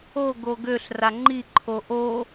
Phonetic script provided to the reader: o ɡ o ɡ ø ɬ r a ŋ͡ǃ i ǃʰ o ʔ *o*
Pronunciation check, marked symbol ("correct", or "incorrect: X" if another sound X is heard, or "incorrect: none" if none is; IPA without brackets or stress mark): correct